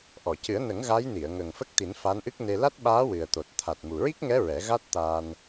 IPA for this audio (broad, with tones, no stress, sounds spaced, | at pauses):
ʔ ɔ˨˩˨ c ɨ˨˩˦ ə̯ n ə˨˩˦ ŋ ɣ a˧˥ j n i˨˩˨ ə̯ ŋ ə˨˩ ŋ f ə˦˥ k̚ t̪ i˨˩˦ n f a˧˥ n ʔ ɨ˦˥ k̚ n e˧ l a˦˥ t̚ ɓ aː˧˥ w ɨ˨˩ ə̯ t̪ o˨˩ t̚ t̪ʰ a˨˩ t̚ m u˨˩ ɹ i˦˥ k̚ ŋ ɛ˧˥ ɹ ɛ˨˩˦ ɣ a˦˥ t̚ t̪ aː˧ n